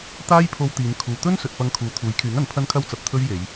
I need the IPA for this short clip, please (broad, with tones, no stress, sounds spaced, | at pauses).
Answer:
t̪ aː˥ j pʰ o˧ w t̪ iː˨˧ n kʰ uː˨ t̪ ɵ˥ n s ɵ˨ t̚ p ɐ˧ ŋ kʰ uː˨ t̪ʰ uː˨˥ j kʰ yː˨˥ ŋ ɐ˨˥ n pʰ ɐ˥ n kʰ ɐ˥ w t͡s ɐ˨ p̚ t̪ʰ ɵ˥ ɥ j e˨˧ j